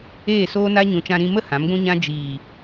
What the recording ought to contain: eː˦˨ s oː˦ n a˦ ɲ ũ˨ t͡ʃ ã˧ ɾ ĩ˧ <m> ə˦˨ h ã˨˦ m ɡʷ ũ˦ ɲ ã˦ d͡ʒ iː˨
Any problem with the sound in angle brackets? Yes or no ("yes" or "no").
no